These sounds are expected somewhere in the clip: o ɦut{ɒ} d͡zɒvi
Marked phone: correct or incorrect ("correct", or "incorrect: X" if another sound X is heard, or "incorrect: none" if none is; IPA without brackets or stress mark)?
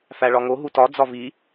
correct